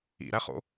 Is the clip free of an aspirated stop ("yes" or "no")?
yes